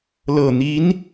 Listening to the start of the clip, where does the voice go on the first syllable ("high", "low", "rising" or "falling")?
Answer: low